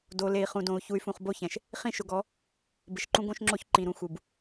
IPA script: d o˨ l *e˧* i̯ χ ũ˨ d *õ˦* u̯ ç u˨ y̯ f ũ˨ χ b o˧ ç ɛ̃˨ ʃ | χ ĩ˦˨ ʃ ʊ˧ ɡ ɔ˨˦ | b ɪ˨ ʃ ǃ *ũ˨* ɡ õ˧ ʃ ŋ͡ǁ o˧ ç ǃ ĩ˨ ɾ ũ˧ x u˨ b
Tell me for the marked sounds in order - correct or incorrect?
incorrect, incorrect, incorrect

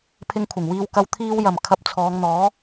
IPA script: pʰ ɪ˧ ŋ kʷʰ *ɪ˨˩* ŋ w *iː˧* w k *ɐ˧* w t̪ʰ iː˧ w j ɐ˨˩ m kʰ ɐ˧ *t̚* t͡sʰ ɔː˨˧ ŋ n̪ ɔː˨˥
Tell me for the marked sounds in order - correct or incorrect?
correct, correct, correct, incorrect

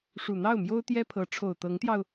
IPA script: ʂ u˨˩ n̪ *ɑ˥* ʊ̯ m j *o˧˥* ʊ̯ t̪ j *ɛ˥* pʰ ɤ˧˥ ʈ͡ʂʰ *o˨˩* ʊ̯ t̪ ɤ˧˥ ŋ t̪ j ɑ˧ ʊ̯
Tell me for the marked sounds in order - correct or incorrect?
incorrect, incorrect, correct, correct

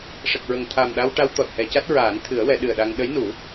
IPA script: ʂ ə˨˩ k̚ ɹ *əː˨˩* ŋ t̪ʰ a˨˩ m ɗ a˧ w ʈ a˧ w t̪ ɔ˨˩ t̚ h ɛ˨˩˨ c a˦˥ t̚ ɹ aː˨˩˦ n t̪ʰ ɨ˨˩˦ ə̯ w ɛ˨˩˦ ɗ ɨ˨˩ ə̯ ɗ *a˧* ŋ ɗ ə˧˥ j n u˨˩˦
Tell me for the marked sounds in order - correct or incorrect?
incorrect, correct

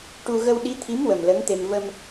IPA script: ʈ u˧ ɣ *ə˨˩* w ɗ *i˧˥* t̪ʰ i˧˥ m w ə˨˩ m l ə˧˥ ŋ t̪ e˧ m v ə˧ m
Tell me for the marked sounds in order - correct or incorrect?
incorrect, correct

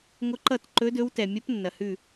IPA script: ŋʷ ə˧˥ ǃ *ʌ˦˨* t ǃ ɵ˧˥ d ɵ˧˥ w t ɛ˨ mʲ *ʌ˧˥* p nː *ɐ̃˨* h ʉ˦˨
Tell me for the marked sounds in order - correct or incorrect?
correct, correct, incorrect

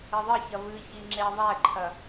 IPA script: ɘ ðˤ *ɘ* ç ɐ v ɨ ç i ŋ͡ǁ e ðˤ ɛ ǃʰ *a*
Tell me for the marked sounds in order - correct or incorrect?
correct, incorrect

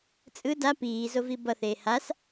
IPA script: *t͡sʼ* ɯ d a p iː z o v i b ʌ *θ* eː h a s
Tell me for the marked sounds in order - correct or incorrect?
correct, correct

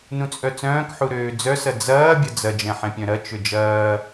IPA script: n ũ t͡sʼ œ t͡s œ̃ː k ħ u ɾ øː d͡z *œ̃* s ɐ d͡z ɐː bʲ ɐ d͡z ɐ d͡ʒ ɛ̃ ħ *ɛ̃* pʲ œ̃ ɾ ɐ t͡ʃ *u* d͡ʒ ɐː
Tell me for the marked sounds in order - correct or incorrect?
incorrect, correct, incorrect

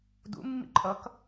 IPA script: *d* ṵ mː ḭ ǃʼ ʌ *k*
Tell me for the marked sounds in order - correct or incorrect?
correct, correct

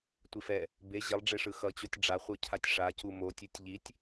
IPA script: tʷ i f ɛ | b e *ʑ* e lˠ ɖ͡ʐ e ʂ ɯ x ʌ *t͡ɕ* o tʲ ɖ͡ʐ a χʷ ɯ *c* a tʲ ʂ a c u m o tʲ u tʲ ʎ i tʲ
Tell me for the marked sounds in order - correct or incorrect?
correct, correct, incorrect

